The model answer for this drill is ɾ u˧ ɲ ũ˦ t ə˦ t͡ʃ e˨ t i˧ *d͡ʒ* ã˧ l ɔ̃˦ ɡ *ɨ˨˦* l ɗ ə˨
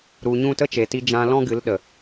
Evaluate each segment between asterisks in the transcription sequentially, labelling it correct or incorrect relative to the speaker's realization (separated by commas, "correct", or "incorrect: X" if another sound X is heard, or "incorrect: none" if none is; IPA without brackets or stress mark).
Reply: correct, correct